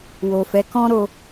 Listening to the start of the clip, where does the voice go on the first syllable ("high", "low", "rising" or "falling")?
low